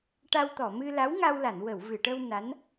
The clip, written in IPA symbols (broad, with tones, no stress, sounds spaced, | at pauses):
ʈ a˧ w t̪ ɔ˨˩˨ m ɨ˧ l a˧˥ w ŋ a˧ w l a˨˩˨ n w ə˨˩˨ w v ɨ˨˩˨ ʈ ə˧ w n a˧˥ n